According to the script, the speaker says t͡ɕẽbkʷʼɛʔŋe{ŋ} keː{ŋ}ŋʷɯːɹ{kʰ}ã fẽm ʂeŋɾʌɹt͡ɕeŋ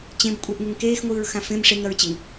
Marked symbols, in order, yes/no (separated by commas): yes, no, no